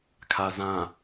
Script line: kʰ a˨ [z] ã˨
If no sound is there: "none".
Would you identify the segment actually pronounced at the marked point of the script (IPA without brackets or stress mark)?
z